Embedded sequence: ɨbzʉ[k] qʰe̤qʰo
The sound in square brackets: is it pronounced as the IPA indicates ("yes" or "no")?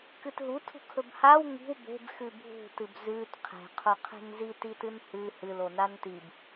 no